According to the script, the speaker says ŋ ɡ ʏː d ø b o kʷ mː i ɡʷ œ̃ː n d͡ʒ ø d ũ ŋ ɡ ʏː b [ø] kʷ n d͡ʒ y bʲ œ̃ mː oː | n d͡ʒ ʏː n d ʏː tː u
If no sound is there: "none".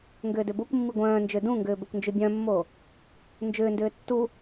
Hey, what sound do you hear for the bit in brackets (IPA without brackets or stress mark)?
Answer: ø